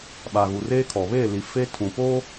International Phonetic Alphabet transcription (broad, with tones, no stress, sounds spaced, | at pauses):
ɓ a˨ ɣ u˨ r eː˦ kʰ ɔ˨ β eː˦˨ l i˨ f e˦ tʰ ũ˨ p oː˦